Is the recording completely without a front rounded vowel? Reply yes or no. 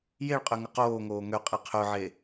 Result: no